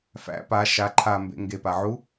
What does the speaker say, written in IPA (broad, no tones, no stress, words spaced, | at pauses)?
fæ̰ pa ʃa ǃʰambḛ ŋɡepa ʕu